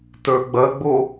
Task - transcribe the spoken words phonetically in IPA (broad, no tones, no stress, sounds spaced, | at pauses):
t ə˞ ɡ͡b ɐ ɡ͡b o